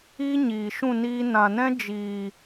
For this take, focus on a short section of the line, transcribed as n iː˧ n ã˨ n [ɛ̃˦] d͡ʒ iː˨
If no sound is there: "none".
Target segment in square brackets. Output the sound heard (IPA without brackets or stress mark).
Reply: ɛ̃˦